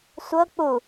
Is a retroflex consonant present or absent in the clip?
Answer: absent